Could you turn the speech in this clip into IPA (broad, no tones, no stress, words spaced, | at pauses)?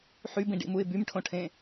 ħybĩɖḭmuɪ̯ bymʈʰõʈʰẽ